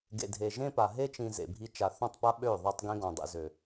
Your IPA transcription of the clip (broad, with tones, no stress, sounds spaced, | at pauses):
ɡ ḛ˨ dʱ e˨ ʒ ẽ˦ p a˨ ɦ e˦ t͡ʃ ĩ˨ z ḛ˨ bʱ i˦ t͡ʃ a˨ θ ɔ̃˦˨ tˤ p a˦ ɓ ø˦˨ ðˤ a˦ tˤ ɡ ẽ˦ ɡ ɔ̃˨ dˤ ḛ˨ z ø˨